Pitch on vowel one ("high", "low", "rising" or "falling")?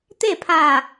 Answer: falling